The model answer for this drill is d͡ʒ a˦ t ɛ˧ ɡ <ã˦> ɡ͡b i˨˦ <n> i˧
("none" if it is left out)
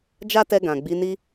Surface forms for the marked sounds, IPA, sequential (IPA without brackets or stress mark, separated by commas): ã˨, n